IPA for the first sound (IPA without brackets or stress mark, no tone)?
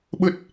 ɓ